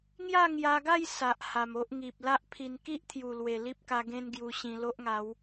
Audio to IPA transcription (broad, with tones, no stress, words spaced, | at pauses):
ŋja˥˧ŋja˧ɡa˥˧j sa˨ʔha˨˩m o˦ʔŋi˨p̚ la˦ʔpʰi˧n ki˦ʔt̪ʰju˨˩lwe˨˩ li˦p̚ka˧ ɡẽ˦n ɡju˧ɕĩ˧ lo˦ʔŋa˨˦w